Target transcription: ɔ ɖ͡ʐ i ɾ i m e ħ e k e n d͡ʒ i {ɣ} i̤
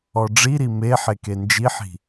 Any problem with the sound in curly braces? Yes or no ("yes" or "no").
yes